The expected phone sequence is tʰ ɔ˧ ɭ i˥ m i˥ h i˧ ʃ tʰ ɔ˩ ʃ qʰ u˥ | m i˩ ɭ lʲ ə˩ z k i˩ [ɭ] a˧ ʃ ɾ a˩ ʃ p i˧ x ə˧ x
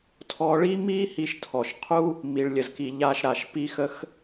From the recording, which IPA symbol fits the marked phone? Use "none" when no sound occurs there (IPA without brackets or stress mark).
ʎ